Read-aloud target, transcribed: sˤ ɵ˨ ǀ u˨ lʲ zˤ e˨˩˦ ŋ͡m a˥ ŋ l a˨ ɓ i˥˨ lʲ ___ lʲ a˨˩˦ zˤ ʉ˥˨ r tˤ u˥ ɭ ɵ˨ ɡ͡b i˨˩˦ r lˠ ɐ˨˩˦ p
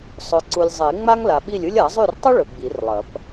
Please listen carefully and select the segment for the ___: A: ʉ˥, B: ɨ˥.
B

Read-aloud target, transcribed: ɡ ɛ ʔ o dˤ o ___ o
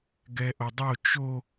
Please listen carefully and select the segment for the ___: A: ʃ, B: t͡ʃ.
B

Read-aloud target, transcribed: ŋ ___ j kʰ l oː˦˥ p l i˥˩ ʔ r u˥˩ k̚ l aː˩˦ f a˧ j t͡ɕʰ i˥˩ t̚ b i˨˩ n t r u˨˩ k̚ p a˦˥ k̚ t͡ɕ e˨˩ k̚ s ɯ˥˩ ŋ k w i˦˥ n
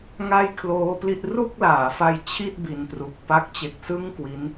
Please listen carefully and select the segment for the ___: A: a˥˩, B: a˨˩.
A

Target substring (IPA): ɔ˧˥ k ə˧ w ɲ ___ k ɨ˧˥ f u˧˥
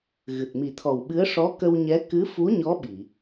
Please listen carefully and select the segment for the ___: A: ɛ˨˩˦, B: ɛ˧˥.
B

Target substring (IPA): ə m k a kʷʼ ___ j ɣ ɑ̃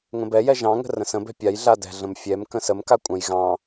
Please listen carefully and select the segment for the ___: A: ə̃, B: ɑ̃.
A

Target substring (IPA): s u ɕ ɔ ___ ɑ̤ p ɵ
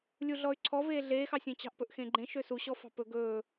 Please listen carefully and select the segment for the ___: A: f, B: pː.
A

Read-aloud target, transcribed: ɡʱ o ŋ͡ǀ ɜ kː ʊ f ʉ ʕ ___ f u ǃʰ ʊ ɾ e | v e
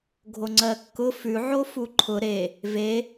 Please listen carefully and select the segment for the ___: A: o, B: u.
A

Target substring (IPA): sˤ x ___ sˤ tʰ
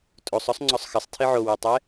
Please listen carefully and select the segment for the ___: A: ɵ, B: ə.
B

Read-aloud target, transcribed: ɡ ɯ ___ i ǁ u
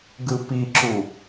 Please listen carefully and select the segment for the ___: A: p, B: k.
A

